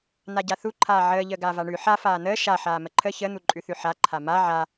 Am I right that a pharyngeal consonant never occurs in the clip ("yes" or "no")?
no